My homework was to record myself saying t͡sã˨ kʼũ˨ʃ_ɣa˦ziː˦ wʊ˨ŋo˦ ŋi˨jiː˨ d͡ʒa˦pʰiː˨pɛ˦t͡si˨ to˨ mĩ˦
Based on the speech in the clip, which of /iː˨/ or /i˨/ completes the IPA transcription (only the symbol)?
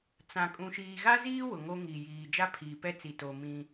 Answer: iː˨